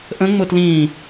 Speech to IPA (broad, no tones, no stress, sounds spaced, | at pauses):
ʔ ə̃ ŋ͡m ʊ t l ĩː